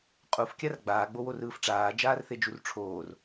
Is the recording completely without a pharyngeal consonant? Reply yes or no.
yes